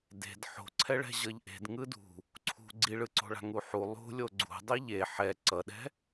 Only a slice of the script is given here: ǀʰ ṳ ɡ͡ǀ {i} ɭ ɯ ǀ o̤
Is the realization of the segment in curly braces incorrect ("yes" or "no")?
no